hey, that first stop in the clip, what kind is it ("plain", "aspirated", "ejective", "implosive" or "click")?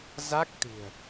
plain